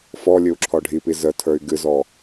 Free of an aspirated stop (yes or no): no